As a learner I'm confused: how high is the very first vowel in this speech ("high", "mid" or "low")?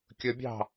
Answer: high